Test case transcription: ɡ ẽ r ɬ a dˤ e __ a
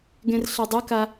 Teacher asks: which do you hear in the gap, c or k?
k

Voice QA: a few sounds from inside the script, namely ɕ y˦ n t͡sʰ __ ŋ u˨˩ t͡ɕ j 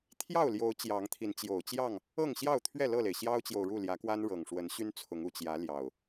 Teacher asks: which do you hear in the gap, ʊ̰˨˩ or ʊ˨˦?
ʊ˨˦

